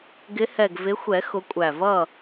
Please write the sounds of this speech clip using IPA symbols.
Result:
ɡ ɪ˨˦ h ɛ˨˩ ɡ v ɪ˨˦ xʷ ɛ˨˩˦ x ʊ˨˦ kʷʼ æ˨˩ v ʌ˥˨

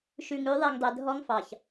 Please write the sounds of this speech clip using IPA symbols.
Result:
ʃ ʉ˨ ŋ ʉ˨˦ ðˤ e˨ ŋ dˤ e˨ dʱ ɔ˦ ŋ f ɑ˨ ç

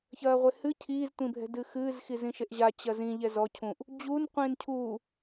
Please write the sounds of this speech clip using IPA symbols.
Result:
ç ɐː ʁʷ e h ɨ cʰ iː z tʷ ĩ bʱ ɛ̤ d ɨː x ɨː z x i z ĩ ʃ e ʔ ʑ a t͡ɕ ɐ z ĩ ʎ ɛ z ɔ cʰ ũ ʔ | d͡ʑ u n qʷ ĩː n cʰ uː

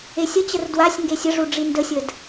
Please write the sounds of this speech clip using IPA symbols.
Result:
e sʲ ə t͡ɕ ə r d w a sʲ ŋ ɡ e sʲ ə ʐ u ɖ͡ʐ i n d ə sʲ ə d

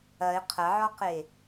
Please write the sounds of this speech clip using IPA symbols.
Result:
ɐ e̯ qʰ ɐ ʕ ɔ q e

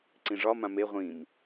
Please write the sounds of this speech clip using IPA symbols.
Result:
ǀ ĩ ʐ ɒ m ã m e ʁʷ ĩ m

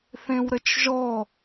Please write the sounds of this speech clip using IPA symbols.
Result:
θ ẽ w ɾ ə t͡ʃ ʒ ɔ

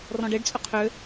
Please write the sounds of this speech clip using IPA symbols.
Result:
r ɔ̃ ɖ e ɖ t͡sʼ ʏ qʰ ʏː

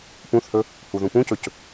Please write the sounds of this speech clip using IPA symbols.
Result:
p ũ θ h ɵ | h u ð ũ p ũ c ɵ c

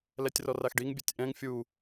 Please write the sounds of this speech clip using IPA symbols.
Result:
l ɛ tʲ r ɔ r a x ɖ i ŋ bʲ ɛ tʲ ʔ ɛ̃ ŋ fʲ u

